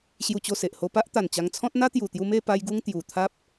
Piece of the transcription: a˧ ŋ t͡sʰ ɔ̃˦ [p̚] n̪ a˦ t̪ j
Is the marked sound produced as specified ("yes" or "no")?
no